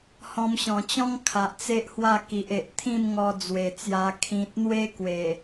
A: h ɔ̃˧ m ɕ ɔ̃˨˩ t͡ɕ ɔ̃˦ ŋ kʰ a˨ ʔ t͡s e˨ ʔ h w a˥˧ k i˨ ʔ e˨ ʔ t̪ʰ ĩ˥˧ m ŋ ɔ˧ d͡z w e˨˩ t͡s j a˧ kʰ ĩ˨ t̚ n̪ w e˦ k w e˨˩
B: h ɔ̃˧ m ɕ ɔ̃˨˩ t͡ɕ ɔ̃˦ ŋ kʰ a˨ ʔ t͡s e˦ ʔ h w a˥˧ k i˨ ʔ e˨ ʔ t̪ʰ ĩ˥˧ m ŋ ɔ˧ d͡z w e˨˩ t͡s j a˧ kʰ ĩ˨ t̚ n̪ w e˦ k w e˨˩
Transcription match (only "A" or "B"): B